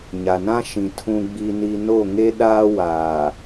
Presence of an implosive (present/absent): present